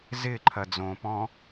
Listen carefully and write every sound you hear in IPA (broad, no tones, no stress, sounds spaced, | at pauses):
z ɪ ǃʰ ɐ d͡z õ p ɔ̃